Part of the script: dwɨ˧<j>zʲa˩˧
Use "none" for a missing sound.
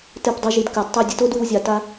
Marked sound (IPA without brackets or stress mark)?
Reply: w